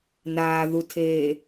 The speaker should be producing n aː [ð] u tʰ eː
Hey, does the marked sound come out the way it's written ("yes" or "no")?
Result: yes